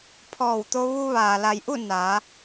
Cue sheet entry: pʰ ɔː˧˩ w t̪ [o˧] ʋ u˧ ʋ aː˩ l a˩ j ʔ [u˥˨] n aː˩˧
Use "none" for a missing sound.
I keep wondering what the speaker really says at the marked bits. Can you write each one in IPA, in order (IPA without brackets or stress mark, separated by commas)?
o˧, u˥˨